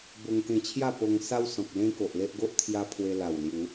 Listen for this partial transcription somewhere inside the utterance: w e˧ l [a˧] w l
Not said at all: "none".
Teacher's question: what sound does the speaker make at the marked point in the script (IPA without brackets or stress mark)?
a˨˩